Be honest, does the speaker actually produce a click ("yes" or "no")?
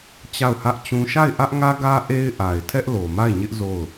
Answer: no